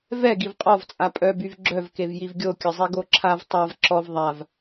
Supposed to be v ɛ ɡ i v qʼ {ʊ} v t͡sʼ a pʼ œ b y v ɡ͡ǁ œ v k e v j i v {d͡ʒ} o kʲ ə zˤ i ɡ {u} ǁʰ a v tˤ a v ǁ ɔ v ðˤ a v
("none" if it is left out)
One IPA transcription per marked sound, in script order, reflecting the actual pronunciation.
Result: ɔ, ɡʲ, o

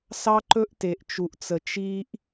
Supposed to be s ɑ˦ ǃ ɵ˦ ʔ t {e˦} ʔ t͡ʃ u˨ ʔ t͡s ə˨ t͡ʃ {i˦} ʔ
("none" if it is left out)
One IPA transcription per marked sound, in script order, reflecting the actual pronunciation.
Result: e˨, i˦

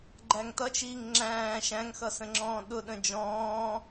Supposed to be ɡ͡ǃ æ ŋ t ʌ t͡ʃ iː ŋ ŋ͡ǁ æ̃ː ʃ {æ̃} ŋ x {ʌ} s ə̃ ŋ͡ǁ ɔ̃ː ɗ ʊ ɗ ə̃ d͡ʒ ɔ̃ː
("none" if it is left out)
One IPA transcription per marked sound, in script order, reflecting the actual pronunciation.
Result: æ̃, ʌ

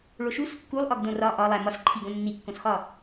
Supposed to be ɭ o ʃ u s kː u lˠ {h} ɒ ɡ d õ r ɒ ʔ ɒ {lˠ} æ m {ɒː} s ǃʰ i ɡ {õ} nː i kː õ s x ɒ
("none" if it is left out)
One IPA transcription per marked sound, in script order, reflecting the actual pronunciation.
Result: ʔ, lˠ, ɒ, õ

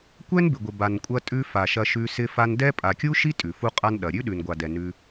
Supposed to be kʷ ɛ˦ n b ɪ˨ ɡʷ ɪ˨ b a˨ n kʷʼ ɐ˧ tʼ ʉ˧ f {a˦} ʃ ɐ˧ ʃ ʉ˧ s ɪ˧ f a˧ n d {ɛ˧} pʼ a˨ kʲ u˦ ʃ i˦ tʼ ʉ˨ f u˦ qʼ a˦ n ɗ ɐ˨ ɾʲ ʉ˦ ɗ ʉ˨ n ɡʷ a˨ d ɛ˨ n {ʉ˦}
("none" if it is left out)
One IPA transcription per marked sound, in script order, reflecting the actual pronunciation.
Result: a˨, ɛ˦, ʉ˦

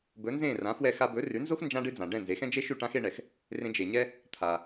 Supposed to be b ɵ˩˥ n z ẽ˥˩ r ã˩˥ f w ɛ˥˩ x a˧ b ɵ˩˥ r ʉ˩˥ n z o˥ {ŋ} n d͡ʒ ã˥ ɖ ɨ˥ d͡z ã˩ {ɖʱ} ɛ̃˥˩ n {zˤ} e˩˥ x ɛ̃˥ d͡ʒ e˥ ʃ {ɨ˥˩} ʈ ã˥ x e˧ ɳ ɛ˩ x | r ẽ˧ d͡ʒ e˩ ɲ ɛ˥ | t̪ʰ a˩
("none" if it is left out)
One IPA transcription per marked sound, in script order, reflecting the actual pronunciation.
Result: x, ɖ, z, ʉ˥˩

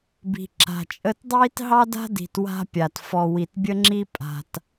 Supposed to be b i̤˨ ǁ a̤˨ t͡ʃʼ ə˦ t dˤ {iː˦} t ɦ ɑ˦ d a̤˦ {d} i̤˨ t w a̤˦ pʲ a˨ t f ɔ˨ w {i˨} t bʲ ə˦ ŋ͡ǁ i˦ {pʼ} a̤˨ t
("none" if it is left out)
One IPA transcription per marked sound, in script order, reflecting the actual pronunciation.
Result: iː˦, d, i˨, pʼ

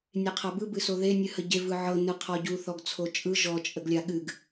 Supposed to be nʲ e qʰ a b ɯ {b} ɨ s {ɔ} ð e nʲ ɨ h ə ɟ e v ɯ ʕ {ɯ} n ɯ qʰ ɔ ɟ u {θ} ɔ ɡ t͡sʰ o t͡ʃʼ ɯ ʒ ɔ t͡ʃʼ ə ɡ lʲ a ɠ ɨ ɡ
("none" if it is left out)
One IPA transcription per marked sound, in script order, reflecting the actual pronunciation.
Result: b, o, ɤ, θ

